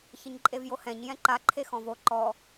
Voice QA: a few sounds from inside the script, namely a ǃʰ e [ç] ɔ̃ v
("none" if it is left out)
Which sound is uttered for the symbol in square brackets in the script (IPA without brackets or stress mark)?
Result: x